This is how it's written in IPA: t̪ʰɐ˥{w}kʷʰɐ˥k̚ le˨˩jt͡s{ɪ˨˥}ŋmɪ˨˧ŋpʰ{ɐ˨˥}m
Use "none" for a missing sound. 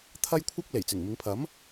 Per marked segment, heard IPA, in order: j, ɪ˨˩, ɐ˨˥

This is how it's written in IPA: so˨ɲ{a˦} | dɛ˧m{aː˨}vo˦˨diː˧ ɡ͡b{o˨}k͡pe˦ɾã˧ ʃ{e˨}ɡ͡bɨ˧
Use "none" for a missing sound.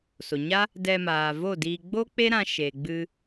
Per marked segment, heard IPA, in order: a˦, aː˨, o˦, e˨

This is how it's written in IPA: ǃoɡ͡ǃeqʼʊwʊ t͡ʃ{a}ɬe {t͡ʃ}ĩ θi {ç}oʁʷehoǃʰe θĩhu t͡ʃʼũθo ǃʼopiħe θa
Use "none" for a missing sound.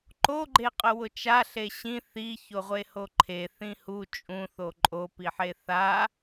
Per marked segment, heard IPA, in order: a, ɕ, ç

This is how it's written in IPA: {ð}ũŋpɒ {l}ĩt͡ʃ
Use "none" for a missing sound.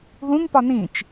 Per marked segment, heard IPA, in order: ð, n

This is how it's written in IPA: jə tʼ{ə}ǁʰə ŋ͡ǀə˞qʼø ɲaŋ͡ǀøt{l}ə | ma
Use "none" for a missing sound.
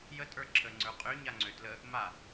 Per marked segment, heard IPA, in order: ə˞, l

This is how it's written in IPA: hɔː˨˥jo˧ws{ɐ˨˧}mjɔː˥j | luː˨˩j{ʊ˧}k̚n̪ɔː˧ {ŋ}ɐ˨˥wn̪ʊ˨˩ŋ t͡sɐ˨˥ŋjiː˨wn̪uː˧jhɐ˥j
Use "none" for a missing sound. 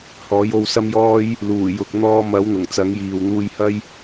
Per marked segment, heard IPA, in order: ɐ˥, ʊ˨, m

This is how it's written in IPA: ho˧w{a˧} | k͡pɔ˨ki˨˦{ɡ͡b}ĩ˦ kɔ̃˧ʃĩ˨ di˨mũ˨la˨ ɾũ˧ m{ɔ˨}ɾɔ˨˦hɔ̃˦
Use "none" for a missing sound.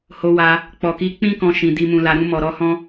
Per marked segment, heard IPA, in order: a˧, k͡p, ɔ˨

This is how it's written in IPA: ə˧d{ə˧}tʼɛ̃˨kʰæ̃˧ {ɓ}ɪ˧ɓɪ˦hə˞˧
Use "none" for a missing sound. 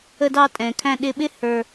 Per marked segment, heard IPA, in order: ɑ˧, ɗ

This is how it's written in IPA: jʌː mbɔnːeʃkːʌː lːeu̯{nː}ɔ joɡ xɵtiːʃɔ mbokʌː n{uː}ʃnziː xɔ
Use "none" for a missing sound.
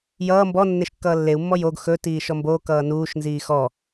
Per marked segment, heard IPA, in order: mː, uː

